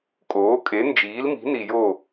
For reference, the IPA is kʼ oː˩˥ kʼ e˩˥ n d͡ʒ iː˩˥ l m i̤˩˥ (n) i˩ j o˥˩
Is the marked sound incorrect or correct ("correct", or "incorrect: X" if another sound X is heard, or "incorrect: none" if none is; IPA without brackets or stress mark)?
correct